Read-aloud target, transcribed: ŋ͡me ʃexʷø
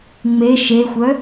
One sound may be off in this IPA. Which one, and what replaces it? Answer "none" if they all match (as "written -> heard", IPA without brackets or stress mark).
ø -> œ